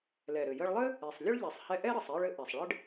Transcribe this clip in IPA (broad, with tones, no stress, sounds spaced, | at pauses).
l ɛ˩ ɾ ɘ˩ j ə˧ ɭ lˠ ɘ˥ | e˩ sˤ lʲ ə˥ ɭ ʎ ɛ˩ sˤ h ɛ˧ ʔ ɛ˥ ɾ ɘ˩ sˤ e˧ ɭ ɘ˧ ʔ ɛ˩ sˤ ɭ ɘ˥ ɖ